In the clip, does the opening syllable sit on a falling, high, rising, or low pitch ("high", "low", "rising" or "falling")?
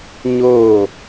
falling